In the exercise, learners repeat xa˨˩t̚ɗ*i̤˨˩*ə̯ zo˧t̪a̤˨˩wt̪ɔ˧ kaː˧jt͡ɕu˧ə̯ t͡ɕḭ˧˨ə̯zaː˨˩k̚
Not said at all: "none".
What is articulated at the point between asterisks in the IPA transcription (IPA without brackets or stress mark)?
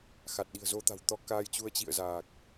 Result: i̤˨˩